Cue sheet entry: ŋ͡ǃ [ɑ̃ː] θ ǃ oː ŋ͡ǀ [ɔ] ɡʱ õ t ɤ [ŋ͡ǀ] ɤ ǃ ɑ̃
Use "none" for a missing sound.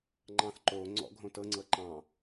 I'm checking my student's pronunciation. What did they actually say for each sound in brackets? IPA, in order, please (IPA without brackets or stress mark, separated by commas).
ɑ̃, ɔ̰, ŋ͡ǀ